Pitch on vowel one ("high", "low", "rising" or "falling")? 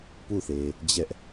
falling